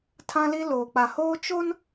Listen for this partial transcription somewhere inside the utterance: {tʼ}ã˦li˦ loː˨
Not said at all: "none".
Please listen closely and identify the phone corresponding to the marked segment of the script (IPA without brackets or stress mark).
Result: tʰ